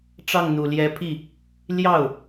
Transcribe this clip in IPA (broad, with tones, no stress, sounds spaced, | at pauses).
ʈ͡ʂ ɑ˥˩ ŋ n̪ u˨˩ l j ɛ˧˥ pʰ i˥˩ | l j ɑ˥˩ ʊ̯